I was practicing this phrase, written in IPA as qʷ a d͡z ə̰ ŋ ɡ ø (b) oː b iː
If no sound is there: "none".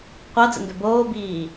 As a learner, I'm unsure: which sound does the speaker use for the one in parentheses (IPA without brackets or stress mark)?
b